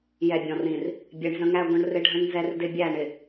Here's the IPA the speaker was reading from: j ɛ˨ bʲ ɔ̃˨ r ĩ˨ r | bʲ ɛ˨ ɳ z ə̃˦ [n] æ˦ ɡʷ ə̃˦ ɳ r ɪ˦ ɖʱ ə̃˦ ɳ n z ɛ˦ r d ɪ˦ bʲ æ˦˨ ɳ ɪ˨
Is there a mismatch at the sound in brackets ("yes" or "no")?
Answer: yes